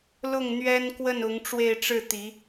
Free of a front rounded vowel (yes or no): yes